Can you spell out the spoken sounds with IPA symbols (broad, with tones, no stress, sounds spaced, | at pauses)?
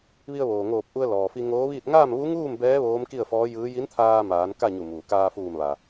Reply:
ʋ i˧ ə̯ ʋ oː˩ ŋ oː˧˩ p̚ ʔ u˧ ə̯ l ɔː˩ f i˧ ŋ oː˧˥ ʋ iː˥˨ t̚ ŋ aː˥˨ m ʋ u˧˥ ŋ uː˥˨ m b ɛː˧˥ ʋ oː˧˥ m k i˥˨ ə̯ f ɔː˧˥ j ɯː˧˥ j i˧˥ n t̪ʰ aː˧ m aː˩˧ n k a˥˨ ɲ u˧˩ m uː˩ k aː˧ f uː˧˩ m ʋ a˩